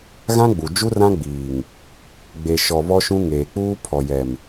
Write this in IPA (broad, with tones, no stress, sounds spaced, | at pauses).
ɣ ã˦ ɡ͡b u˨ d͡ʒ u˦ r ã˦ ɡ͡b iː˨ ŋ | ɡ͡b e˨ ʃ ɔ˨ β ɔ˦ ʃ ũ˦ ŋ eː˨ k͡p uː˦ pʰ ɔ˨ j ɛ˨ m